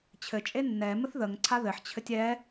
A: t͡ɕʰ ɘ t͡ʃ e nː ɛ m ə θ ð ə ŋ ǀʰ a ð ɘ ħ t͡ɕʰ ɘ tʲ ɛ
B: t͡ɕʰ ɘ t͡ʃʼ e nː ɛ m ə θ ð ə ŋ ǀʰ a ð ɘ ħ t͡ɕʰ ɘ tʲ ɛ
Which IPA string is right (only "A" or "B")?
B